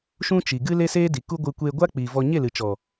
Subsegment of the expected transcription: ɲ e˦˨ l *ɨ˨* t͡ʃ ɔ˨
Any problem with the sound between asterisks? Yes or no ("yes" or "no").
no